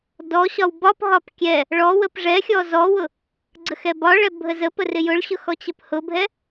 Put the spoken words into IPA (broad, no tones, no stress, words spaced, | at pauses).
dɔɕɒw bɒpɦɒp kʲɛ | ɭɔwəp ʐɛxʲɔ zɔwʊ | ɡ͡ǀəxɛbɒɭɛ bʱəzəpə rɪjʊɭɕʊ xɔt͡ɕəphʊbʱɛ